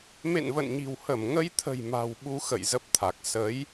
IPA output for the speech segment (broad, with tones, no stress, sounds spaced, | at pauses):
m ḛ˧˨ n v ə̰˧˨ n ɲ i̤˨˩ w h ə˧˩ m ŋ ə˧ j t̪ʰ ə̤˨˩ j m a̤˨˩ w ɓ u˧ x ə̰˧˨ j z ə˦˥ p̚ t̪ʰ a˨˩ k̚ s ə˨˦ j